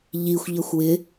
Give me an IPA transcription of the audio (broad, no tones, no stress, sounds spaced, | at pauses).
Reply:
ʎ i xʷ ʎ ʌ xʷ w ɪ